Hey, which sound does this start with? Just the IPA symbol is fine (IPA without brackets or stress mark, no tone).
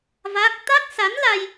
v